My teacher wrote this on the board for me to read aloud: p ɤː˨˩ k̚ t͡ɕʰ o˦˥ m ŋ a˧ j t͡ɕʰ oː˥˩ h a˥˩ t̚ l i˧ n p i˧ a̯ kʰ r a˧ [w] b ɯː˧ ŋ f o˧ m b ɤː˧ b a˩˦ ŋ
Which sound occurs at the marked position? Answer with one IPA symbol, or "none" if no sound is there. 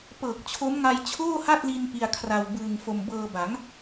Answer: w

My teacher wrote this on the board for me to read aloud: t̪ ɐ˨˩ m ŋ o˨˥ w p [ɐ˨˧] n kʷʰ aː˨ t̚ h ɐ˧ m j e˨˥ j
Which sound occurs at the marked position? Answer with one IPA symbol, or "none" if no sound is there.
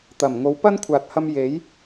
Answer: ɐ˥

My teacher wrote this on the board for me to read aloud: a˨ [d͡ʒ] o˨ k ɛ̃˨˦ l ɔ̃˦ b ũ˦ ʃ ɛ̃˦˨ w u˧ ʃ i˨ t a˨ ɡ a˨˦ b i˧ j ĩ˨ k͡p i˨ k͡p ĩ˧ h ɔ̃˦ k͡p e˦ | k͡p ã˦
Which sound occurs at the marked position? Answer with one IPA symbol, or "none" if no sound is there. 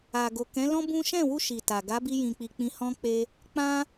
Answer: ɡ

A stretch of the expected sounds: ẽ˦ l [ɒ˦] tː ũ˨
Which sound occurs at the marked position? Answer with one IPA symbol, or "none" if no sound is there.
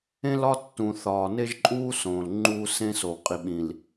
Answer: ɒ˦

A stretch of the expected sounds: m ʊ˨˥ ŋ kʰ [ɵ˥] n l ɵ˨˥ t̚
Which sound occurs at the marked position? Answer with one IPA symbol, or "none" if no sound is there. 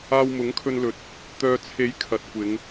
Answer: ɵ˧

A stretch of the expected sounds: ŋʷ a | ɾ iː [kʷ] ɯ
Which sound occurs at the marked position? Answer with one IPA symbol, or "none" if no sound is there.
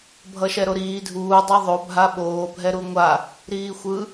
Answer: xʷ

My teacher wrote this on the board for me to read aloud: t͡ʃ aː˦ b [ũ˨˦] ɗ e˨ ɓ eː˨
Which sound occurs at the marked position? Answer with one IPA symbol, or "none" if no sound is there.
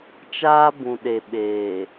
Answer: ũ˨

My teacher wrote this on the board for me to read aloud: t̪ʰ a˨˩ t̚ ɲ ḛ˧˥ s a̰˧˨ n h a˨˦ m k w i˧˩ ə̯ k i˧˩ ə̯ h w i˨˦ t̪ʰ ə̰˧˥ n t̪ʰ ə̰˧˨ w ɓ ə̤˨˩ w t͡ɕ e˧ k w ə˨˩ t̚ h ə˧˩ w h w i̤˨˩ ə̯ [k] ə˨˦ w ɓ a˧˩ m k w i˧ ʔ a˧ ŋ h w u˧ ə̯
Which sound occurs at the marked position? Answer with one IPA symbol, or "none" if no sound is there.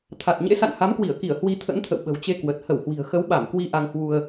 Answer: x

